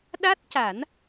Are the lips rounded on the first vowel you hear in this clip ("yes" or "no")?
no